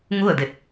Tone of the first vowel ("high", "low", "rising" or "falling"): falling